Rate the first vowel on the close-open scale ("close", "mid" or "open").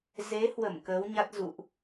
mid